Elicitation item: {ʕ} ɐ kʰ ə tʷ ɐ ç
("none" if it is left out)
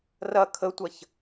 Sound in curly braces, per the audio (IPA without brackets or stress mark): r